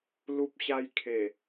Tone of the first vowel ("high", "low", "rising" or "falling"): high